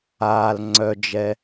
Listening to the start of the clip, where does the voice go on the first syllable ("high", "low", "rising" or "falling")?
low